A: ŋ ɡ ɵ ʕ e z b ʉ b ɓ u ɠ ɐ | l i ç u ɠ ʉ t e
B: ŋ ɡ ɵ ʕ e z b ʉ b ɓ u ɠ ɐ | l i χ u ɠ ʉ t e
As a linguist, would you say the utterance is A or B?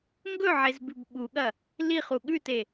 B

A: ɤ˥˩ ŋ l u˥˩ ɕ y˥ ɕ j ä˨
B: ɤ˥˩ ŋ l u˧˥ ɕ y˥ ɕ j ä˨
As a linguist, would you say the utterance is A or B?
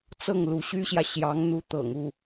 B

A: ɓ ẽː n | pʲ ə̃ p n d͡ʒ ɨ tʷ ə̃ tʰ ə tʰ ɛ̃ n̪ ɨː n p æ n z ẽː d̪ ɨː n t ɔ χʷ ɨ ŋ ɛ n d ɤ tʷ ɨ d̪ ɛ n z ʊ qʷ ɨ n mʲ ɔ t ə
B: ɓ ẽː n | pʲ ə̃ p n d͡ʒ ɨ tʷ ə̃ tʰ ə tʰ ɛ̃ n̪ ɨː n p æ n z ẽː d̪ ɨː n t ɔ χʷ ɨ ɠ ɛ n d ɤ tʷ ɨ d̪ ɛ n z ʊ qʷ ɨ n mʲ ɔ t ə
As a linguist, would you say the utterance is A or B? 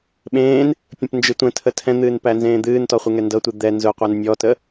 A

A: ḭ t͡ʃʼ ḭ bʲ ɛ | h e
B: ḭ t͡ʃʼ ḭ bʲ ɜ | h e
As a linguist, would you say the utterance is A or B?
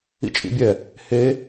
A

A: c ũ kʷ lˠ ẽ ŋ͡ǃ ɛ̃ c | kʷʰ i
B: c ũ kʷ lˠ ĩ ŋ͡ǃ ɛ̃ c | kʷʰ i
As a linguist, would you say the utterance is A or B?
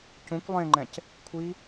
A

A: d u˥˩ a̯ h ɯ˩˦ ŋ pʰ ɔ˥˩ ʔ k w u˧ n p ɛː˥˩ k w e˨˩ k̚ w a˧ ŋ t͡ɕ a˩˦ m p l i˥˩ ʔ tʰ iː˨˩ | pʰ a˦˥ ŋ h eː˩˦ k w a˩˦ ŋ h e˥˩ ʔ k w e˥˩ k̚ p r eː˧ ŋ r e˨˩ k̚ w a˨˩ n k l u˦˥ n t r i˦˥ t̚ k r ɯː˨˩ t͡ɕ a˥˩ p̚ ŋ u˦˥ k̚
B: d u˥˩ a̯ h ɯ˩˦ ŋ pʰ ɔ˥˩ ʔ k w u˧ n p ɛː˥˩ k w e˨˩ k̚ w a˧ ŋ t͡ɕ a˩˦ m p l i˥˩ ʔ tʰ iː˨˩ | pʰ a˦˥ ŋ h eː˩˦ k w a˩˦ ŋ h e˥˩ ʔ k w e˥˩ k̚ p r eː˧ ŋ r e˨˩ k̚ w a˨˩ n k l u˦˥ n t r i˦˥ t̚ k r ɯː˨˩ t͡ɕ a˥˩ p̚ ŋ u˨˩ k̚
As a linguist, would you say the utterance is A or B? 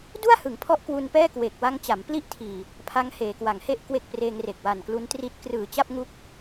A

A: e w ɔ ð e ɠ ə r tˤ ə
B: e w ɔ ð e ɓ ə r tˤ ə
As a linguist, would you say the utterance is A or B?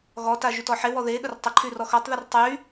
A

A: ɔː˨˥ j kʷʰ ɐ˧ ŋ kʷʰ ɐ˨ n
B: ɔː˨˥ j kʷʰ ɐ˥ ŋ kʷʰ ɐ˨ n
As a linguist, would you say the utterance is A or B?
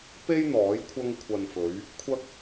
A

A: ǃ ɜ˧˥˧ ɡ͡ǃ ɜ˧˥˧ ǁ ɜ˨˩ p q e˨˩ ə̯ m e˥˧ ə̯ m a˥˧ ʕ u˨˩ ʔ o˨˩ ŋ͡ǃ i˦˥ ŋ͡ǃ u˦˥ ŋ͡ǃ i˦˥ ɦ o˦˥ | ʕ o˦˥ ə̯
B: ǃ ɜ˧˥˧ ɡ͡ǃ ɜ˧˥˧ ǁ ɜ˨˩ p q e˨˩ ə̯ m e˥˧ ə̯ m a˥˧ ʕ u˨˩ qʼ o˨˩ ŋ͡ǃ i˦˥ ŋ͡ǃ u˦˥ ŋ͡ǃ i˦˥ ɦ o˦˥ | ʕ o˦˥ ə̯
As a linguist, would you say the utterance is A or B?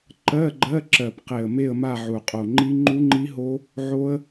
B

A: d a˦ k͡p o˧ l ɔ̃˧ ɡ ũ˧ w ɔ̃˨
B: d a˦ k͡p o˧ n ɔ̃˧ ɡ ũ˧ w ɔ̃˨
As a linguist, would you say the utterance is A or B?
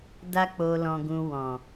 A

